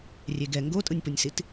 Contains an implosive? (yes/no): no